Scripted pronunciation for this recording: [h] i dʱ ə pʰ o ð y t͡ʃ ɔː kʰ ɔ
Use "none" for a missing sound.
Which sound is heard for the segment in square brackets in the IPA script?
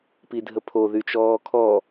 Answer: p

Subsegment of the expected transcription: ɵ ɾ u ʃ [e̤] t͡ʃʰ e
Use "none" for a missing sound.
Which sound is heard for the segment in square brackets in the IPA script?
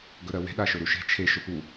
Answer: e̤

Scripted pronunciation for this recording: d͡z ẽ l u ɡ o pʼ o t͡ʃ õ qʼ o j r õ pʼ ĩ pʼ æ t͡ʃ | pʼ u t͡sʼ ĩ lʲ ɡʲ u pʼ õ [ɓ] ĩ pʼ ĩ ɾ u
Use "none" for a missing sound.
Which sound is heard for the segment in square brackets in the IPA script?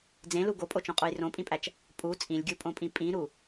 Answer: pʼ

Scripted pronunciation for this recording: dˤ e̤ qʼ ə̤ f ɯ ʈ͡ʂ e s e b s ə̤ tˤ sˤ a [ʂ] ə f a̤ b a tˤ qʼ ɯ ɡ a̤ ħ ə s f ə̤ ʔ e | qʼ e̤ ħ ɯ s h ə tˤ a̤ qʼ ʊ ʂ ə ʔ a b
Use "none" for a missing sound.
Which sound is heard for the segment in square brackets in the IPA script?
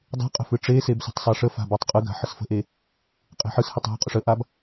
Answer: ʂ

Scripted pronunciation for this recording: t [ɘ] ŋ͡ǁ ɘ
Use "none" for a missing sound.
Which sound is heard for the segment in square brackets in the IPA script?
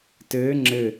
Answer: ɘː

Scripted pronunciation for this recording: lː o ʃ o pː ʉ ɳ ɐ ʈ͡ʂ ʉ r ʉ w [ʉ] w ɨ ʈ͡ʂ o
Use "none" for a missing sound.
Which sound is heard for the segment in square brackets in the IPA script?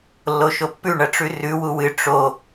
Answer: u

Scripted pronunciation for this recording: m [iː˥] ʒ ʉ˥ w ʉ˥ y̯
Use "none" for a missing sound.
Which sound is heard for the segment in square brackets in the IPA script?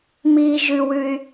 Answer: iː˥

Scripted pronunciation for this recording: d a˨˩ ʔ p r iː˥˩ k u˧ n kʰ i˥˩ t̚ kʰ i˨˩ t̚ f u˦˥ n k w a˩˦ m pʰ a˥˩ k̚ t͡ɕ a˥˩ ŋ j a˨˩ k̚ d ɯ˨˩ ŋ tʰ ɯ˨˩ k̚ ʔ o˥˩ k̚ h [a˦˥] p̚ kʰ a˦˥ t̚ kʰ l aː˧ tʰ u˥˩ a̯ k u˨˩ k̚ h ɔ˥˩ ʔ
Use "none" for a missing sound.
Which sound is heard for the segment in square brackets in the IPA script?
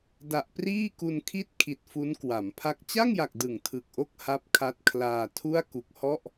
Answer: a˦˥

